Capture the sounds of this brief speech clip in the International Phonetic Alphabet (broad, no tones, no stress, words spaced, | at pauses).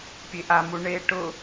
pʲeʔamu ɳe ʈʊ